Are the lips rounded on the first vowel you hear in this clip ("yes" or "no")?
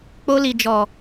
yes